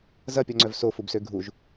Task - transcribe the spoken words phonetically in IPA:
z ɐ pʲ ɔ ŋ͡ǀ œ v s o f u b s ø ɡʱ u ʒ

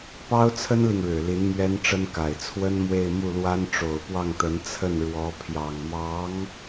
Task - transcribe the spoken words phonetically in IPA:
p ɑ˥ ʊ̯ t͡sʰ ə˥ n l i˨ ŋ ɻ ɻ̩˨˩ l i˧˥ n m ɥ ɛ˥ n ʈ͡ʂ ə˥ n k a˨˩ ɪ̯ t͡sʰ w ə˥ n m w e˥˧ ɪ̯ m u˥˩ l w a˥ n ʈ͡ʂ o˨˩ ʊ̯ p w ɑ˥˩ ŋ t̪ ə˧˥ n t͡sʰ ə˥˩ n ɻ w ɔ˧˥ pʰ j ɑ˨˩ ŋ m ɑ˧˥ ŋ

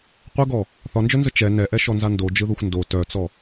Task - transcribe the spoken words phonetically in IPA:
qʷ ə ɡ ɔ | θ ɒ n d͡ʒ œ n z ə t͡ʃ ɛ n ɛ ʔ ɛ ʃ ɔ n z a n d o d͡ʒ ɯ ð o xʷ n d o t œ t͡s ɔ

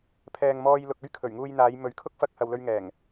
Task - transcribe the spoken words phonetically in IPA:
pʰ ɛː˨ ŋ m ɔː˧ j l ʊ˨ k̚ ɵ˥ ɥ kʰ ɵ˨˩ ɥ ŋ uː˧ j n̪ aː˨˧ j m ɵ˨˧ ɥ kʰ ʊ˥ k̚ f ɐ˧ k̚ h ɐ˨ w l ɵ˧ ɥ ŋ ɛː˨˩ ŋ

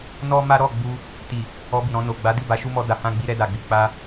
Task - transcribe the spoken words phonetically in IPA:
n ɔ˦ m a˦ ɾ ɔ˦˨ ɡ͡b u˧ | t i˨ | ɔ˧ b i˨ ɾ ɔ̃˧ n o˨ ɡ͡b a˨˦ d i˦˨ b a˨˦ ʃ u˦ m ɔ˧ d a˨ h ã˧ ɡ͡b i˧ ɾ ɛ˧ d a˨ ɡ͡b i˨ k͡p a˧

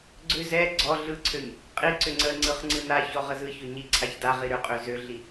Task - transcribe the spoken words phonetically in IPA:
ɡ͡ǀ ʏ z ɛ ɡ͡ǀ ɔ ɮ ɯ ǀʰ ø ɲ | qʼ i ǀ ʏ ŋ͡ǀ ə ŋ͡ǀ ɯ χ ŋ͡ǀ ɯ n a ç ɔ ʁ ə z ɯ ç ʏ ɲ i ǀʰ a ç d a ʁ i ɾ ʏ qʼ ø z ø ɮ i

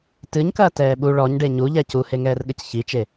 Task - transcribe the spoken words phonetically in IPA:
t ɨ ɲ k ɐː t ɛː ɓ u ɭ ɔ ɲ ɖ e ɲ u ʎ ɛ c u h e ŋ ɛː r ɠ ɘ c ç i t͡ʃ e

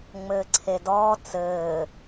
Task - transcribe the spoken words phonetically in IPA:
ŋ͡m ɘː ǀʰ e d ɔː t͡s ɘː

